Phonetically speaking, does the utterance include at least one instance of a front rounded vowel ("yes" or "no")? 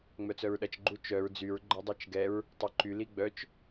yes